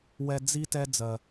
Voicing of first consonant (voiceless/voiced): voiced